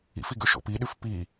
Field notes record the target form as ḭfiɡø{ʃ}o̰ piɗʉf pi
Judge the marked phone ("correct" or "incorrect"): correct